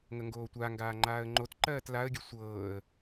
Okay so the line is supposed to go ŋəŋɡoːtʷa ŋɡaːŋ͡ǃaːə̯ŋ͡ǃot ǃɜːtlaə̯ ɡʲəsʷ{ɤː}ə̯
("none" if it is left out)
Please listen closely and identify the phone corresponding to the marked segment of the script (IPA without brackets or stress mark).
ɤː